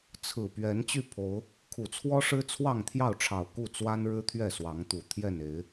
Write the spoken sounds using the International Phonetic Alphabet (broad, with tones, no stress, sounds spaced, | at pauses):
t͡sʰ ɹ̩˨˩ p ɥ ɛ˨˦ n t͡ɕ y˥˨ pʰ o˨˦ ʊ̯ | kʰ u˨˩ t͡sʰ w ɔ˦ ʂ ɻ̩˦ t͡sʰ w ɑ˥˨ ŋ t̪ʰ j ɑ˥˨ ʊ̯ ʈ͡ʂʰ ɑ˨˩ ʊ̯ k u˥˨ t͡s w a˦ n ɻ ɻ̩˦ t̪ʰ ɥ ɛ˥˨ s w ɑ˨˦ ŋ t̪ u˨˩ t̪ʰ j ɛ˥˨ n e˨˦ ɪ̯